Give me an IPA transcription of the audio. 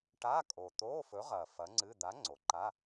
ʈ a˧˥˧ kʼ o˨˩ t̪ oː˧˥˧ f ɵ˨˥ ʁ ɐː˨˩ f ɐ˨˥ ŋ͡ǀ ɨ˧˥˧ d̪ a˨˥ ŋ͡ǀ o˩˧ ǃ a˧˥˧

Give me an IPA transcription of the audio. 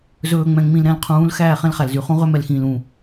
z ɵː˨ ŋ͡m ɛ̃˨ ŋ͡m ĩ˨ l ɾ ɛ̃˨ l qʰ ũː˨˦ l x æː˦˨ χ ɛ̃˦ l χ æ˨ l z y˨ χ ũ˦ ʁ ø˦ m ɛ˨ l x ĩː˨ l ũ˦˨

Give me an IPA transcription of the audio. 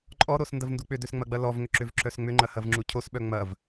ǃʼ ɔ ɾ o s n d ɐ v n d u k͡p ʏ d ø s ŋ͡m ɐ ɡ͡b ɐ l ɔ v ŋ ʏ ǁ ʏ v ǁ œ s ŋ͡m ʏ ŋ͡ǃ ɐ h ɐ v ŋ͡ǁ u cʰ o s ɓ œ ŋ͡m ɐ v

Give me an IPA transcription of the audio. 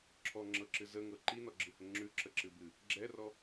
ǁʰ ɔ ŋ͡ǁ ɤ ǁ ɨ z ə ŋ ɤ ǃ i n ɔ ɡ͡ǁ ɨ h ə ŋ͡ǁ ʉ ǁ ə ǁ ɨ b ɨ | ɡ͡ǁ ɛ r ɔ

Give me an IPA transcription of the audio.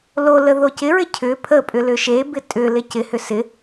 l o l ə ð o c ɪ ɹ ɪ cʰ ʏ pʰ ə pʼ ʏ l ʏ ʃ e b ɪ tʼ ʏ l ɪ c ɪ h ʏ s ɪ

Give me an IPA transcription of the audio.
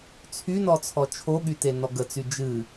t͡sʰ y n ɔ t͡sʰ ɔ t͡ʃʰ o ɠ y t e n ɔ ɡ ə t͡s y d͡ʒ ɨ

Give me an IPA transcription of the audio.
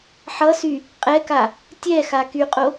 ħ ʌ s y | qʼ ɛ k a | tʲ ɛ x a k y qʼ o

